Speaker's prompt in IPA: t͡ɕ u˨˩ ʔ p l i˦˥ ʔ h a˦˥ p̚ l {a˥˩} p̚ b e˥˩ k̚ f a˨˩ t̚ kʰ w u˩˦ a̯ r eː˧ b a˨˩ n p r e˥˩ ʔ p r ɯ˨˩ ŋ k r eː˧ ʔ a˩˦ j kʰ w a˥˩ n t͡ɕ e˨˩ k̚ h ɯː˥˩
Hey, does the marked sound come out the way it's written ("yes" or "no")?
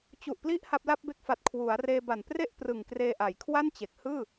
yes